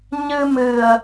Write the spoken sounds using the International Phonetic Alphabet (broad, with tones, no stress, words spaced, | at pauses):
ɲɨ˧mɨ˨˩ə̯